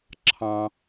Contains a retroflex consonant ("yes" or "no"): no